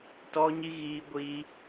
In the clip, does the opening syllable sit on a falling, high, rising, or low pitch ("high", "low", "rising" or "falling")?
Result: high